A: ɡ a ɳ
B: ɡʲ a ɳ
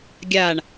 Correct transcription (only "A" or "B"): B